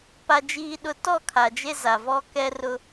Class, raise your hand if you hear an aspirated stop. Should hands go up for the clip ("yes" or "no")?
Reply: yes